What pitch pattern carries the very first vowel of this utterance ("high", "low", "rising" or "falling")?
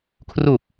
low